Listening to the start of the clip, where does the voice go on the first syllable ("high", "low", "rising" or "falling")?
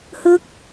falling